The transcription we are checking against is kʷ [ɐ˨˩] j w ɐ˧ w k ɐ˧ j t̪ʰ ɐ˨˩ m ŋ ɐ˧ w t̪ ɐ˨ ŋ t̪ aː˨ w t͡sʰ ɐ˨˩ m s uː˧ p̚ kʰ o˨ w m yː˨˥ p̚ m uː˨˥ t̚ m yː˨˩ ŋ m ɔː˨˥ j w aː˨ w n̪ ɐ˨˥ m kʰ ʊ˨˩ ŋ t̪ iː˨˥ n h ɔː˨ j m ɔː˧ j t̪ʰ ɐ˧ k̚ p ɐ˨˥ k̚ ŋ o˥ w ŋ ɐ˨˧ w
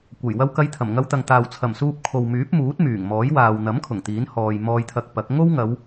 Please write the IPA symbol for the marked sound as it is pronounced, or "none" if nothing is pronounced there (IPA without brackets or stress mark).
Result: ɐ˨˩